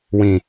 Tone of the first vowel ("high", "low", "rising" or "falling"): low